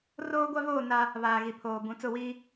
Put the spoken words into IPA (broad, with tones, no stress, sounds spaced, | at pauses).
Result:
r oː˦ ɡʷ a˦ v oː˦˨ n a˦ | β aː˨ ɣ i˨ pʰ oː˨ b ũ˨ t͡s ʊ˦˨ w iː˦